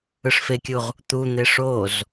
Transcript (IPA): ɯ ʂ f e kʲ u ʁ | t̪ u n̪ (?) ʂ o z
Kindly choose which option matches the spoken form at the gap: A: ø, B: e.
B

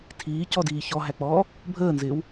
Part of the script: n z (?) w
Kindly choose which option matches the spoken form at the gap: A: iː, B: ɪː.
B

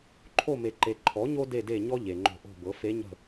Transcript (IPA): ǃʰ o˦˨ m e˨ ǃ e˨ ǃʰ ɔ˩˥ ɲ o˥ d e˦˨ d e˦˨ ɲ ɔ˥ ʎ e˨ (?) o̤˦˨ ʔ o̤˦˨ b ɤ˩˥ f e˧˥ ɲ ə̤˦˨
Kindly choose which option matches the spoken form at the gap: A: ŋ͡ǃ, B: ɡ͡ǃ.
A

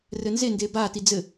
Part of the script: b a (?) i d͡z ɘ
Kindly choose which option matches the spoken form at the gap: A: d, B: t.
B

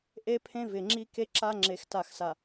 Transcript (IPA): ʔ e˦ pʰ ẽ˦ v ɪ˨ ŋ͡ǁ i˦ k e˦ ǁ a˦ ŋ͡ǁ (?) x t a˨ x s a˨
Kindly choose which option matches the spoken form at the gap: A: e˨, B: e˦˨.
A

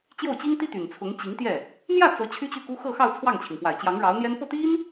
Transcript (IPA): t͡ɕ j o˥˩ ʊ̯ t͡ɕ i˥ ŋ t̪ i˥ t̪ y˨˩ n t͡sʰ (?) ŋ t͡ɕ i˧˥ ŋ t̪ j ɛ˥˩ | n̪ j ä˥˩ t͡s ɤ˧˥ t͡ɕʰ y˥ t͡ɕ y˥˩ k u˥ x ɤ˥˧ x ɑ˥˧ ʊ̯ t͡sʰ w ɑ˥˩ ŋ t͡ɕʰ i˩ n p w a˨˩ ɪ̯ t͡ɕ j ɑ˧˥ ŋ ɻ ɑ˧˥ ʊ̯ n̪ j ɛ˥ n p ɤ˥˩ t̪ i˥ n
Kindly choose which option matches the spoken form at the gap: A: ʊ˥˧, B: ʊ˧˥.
B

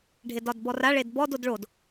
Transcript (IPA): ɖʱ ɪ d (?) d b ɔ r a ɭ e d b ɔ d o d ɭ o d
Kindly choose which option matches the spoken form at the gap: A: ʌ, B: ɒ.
B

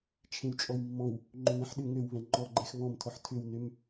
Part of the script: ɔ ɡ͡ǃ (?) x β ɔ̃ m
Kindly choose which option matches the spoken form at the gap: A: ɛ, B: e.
A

